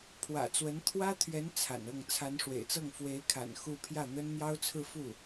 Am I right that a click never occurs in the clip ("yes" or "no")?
yes